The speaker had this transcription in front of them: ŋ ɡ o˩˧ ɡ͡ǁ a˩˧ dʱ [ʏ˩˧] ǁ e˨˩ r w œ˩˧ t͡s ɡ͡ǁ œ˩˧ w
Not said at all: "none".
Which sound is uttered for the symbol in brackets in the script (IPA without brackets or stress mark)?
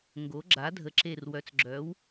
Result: ə˩˧